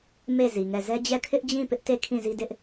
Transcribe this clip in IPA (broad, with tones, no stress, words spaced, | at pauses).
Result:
me˦˨ zi˨ŋɛ˦˨ zɛ˦d͡ʑɛ˦˨ kʰɪ˦ʔd͡ʑĩ˦˨ pɪ˦ʔte˦˨ kʰĩ˦˨zi˦dɪ˦ʔ